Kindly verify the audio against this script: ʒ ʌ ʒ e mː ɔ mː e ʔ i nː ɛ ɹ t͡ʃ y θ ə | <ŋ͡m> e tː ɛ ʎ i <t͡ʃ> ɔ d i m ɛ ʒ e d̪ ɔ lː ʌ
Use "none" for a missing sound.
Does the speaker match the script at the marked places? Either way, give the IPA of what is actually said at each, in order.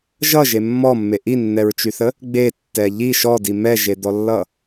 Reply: ɡ͡b, ʃ

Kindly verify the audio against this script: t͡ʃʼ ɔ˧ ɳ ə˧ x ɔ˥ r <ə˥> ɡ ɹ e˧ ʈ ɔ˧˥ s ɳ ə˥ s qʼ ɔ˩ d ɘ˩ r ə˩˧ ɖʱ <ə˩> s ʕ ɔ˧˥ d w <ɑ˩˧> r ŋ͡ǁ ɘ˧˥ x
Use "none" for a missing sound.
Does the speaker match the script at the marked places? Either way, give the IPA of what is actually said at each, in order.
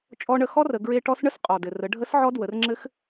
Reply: ə˩˧, ə˧˥, ə˩˧

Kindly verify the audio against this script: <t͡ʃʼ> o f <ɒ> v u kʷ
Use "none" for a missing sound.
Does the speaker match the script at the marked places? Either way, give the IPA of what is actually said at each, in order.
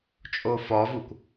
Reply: t͡ʃʼ, ɒ

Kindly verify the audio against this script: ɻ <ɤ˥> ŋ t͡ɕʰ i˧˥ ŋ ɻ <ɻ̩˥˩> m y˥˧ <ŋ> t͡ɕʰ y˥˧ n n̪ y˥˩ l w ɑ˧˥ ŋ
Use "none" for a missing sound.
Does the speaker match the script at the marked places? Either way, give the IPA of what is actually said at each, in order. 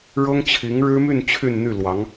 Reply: ɤ˥, ɻ̩˥, n

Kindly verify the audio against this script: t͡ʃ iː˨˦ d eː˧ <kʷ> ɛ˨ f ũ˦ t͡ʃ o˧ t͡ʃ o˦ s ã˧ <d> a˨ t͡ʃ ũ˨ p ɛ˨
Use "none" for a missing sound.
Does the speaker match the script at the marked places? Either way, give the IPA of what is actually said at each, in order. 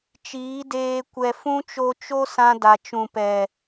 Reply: kʷ, d

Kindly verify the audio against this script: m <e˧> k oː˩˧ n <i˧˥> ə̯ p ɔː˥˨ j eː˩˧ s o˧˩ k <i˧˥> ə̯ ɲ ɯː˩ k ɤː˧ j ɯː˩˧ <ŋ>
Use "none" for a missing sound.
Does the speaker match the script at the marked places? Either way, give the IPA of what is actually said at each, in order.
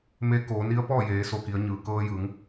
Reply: e˧, i˧˥, i˩˧, ŋ

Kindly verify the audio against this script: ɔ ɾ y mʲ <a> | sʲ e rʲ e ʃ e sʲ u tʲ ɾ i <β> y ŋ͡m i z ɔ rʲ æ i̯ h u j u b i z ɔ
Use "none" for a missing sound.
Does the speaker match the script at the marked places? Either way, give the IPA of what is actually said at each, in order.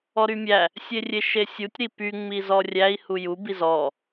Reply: æ, p

